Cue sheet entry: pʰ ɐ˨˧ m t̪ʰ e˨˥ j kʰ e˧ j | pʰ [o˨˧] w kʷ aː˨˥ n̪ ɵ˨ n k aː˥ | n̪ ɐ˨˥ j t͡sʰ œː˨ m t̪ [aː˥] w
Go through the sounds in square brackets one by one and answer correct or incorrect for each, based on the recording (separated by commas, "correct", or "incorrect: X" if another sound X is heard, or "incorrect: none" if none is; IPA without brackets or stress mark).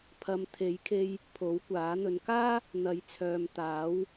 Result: incorrect: o˨˥, incorrect: aː˨˥